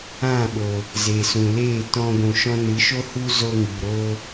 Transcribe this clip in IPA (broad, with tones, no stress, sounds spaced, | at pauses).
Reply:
ã˦˨ ɓ oː˨ | z eː˨ s ũ˨ l eː˦˨ t ɔ̃˧ ɡʷ ũ˨ ʃ ɔ̃˧ n ɨ˨˦ ʃ o˦ h u˦ z o˧ ŋ i˨ ɾ oː˦